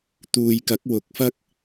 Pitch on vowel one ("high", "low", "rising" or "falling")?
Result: low